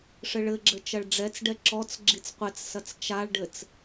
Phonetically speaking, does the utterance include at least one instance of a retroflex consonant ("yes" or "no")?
yes